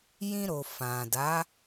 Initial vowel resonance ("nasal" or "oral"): nasal